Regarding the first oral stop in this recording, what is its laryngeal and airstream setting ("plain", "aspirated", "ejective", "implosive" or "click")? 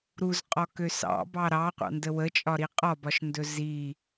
ejective